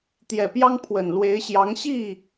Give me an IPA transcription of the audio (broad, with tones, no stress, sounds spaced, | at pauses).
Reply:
t̪ j ɛ˨˩ p j ɑ˥ ŋ pʰ w ə˨˩ n l w e˧˥ ɪ̯ ɕ j ɑ˧˥ ŋ ɕ i˥˩